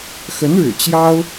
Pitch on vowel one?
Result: rising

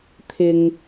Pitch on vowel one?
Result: low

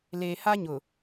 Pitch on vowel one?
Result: low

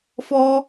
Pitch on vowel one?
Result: high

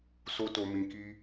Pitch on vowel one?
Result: high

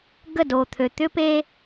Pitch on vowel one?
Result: falling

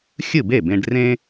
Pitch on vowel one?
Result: falling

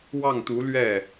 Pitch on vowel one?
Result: falling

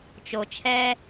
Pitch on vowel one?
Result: low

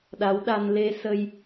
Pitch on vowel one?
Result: rising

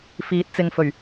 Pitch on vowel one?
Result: rising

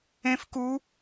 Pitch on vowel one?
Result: high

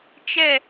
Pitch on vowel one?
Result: falling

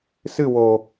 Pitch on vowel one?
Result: falling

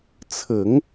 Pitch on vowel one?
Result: low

